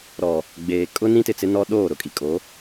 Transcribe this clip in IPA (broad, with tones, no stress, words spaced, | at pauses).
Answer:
ɾɔ˨ | ɡ͡beː˨ kʼʊ˦ nĩ˦tɪ˨t͡sɪ˦ nɔ˦ ɗoː˦˨ɾʊ˨kʼi˨ kʼo˨˦